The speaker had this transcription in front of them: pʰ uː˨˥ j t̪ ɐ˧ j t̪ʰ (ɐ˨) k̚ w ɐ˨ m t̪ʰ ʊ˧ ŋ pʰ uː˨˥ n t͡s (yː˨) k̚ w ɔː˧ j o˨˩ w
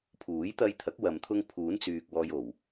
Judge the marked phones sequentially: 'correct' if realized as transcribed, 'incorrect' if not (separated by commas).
incorrect, correct